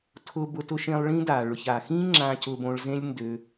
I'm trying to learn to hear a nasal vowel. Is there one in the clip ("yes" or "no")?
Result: yes